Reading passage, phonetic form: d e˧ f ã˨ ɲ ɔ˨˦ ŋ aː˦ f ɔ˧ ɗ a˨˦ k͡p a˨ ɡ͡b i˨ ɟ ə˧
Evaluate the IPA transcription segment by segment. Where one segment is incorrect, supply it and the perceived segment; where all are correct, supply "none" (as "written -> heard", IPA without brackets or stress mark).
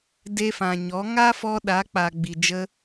ɟ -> d͡ʒ